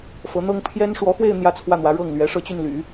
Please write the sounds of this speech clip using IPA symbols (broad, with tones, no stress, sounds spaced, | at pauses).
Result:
f ɤ˧˥ n̪ ɤ˥ ŋ pʰ j ɛ˥ n ʂ w ɔ˧˥ x w e˥˧ ɪ̯ n̪ j ä˥˧ t͡sʰ w ä˥˩ n̪ w ä˧˥ ɻ ɤ˥˩ ŋ l ɥ ɛ˧˥ ʂ ɤ˥˧ t͡ɕ y˥˩ n l y̰˨˩˦